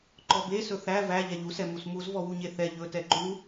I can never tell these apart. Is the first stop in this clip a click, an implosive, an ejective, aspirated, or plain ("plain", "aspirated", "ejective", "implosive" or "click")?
click